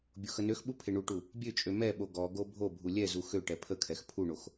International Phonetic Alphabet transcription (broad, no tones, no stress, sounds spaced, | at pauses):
bʲ o x ə n ø x ɓ u pʰ e ɳ u ʈ u | bʲ ø t͡ʃʼ ø m ɛ ɓ o ɡ ɔ ɡ o bʱ o bʱ u lʲ ɛ z u x ø ʈ ɛ pʰ ə kʰ ɛ x pʰ u ɳ o x